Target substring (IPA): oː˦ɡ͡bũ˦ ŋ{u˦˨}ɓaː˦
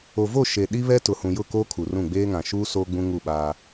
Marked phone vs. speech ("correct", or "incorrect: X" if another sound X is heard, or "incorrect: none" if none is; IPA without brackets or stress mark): correct